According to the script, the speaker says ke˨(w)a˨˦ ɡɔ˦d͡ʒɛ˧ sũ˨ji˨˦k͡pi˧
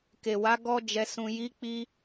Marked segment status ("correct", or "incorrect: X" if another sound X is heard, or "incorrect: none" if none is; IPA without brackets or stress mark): correct